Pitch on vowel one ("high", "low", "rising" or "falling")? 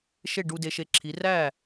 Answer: falling